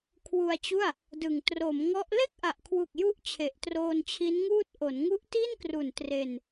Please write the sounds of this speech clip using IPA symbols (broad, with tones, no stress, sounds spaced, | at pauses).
kʰ w u˧ a̯ t͡ɕ u˥˩ a̯ | d ɯ˨˩ ŋ t r o˩˦ m ŋ ɔ˦˥ ʔ l e˥˩ k̚ ʔ a˨˩ ʔ kʰ w u˨˩ k̚ j u˥˩ ʔ t͡ɕʰ e˨˩ ʔ t r oː˧ n t͡ɕʰ i˦˥ n ŋ uː˥˩ t̚ ʔ o˩˦ n ŋ u˦˥ ʔ t i˥˩ n k r u˨˩ n t r e˧ n